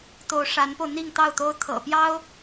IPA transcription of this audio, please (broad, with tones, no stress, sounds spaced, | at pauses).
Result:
t̪ o˧˥ ʊ̯ ʂ a˧˥ n p o˧ ʊ̯ n̪ i˥˧ ŋ t̪ ɑ˥˩ ʊ̯ t̪ o˥ ʊ̯ t̪ʰ ɤ̰˨˩ p j ɑ˥ ʊ̯